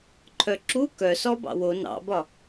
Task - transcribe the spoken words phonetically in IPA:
ǃʰ œ ǁ u k œ s ɔ b ɑ̰ w o n ɑ̰ b ɒ

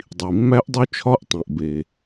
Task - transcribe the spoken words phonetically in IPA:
dˤ i˩ mː æ˦˥ ʔ dˤ u˦˥ t͡ʃʰ ɒ˦˥ ʔ tˤ ĩ˩ ʔ b e˩

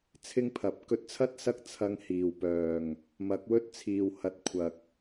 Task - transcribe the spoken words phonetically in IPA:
t͡sʰ ɪ˥ ŋ pʰ ɐ˨˥ p̚ k ɵ˧ t̚ t͡sʰ ɐ˥ t̚ s ɐ˥ k̚ t͡sʰ ɐ˧ ŋ h iː˨˩ w p œː˨˩ ŋ | m ɐ˨˥ k̚ w ɵ˥ t̚ t͡sʰ iː˨ w h ɐ˨ t̚ kʷʰ ɐ˨ k̚

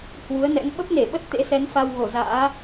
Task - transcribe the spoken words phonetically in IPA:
h w u˨˦ ə̯ n ɛ̰˧˥ ŋ ɓ ə˦˥ p̚ n e˧˩ ɓ ə˦˥ t̚ t̪ ḛ˧˥ s ɛ˨˦ n f a˧ w ɣ o˧˩ z a̰ː˧˥

